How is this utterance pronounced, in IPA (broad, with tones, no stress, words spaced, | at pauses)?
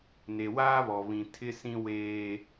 ne˨waː˦βɔ˨βĩ˨ tʰɪ˦sĩ˦ weː˦